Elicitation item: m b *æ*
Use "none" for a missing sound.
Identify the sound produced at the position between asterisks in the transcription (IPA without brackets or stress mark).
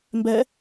ɛ